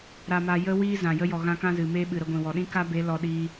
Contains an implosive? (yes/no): yes